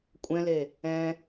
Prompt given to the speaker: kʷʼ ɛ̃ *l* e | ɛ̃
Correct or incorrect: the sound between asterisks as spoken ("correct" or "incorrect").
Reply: correct